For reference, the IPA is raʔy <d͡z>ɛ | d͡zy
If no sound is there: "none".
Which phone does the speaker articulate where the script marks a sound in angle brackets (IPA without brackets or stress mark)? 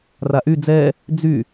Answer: d͡z